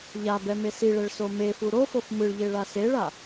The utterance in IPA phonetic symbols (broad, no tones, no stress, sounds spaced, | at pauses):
ʎ a b ɛ m e s i ɭ ɛ ɭ s o m e f u ɾ o f o f m ɯ ɭ ʎ e ɭ a s e ɭ a